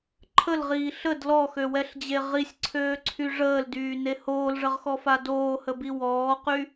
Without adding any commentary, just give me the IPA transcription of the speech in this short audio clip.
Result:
ǃʰəlʁiː ɬəd lɔxøwɛɬd͡ʑe ʁisʲǀʰøːǀʰy ʐəːldyːne hoːlʐəʁxɔfa doːhəbi wɔːqy

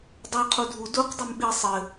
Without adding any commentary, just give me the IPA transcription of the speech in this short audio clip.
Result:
dˤo qʰudʱu duq dˤumɓi sˤɘ

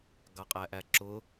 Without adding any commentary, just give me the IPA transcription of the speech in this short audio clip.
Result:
ɡɑqʼæʔæǁʊ

